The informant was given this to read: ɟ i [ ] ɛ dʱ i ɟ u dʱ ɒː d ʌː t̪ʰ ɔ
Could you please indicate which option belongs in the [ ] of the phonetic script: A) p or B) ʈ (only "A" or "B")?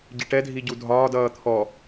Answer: B